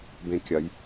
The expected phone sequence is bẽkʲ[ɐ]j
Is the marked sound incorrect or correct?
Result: correct